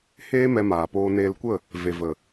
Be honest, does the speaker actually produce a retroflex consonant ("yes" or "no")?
no